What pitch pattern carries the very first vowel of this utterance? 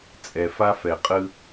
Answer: low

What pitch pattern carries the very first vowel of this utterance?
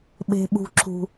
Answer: high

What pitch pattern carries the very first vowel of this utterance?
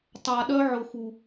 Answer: low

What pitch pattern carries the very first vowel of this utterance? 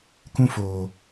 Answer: high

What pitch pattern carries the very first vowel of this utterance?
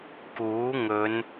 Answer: rising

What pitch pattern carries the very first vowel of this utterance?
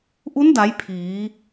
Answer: rising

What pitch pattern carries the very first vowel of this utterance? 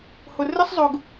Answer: low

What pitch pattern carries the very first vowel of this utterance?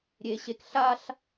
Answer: high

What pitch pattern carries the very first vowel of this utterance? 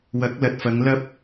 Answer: rising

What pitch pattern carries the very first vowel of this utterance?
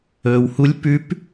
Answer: low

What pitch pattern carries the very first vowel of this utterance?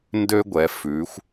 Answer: high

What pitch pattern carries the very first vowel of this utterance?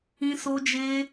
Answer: high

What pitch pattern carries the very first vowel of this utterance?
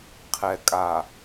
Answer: low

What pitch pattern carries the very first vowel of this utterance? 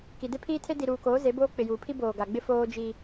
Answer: low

